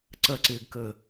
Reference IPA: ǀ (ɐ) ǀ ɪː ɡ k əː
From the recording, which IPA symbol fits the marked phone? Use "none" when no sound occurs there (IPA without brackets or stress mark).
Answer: ɐ